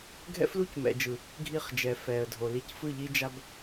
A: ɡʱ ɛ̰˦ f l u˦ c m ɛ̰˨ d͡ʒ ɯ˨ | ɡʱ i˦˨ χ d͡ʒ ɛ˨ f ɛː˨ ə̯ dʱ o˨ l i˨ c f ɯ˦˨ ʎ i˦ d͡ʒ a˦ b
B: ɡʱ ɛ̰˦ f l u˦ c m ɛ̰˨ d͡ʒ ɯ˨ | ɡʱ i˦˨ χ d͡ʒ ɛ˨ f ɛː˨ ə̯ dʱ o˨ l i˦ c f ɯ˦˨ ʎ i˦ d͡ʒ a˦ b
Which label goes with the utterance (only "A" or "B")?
A